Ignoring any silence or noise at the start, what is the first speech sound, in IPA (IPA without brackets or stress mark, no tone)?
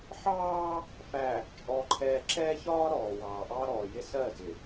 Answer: ħ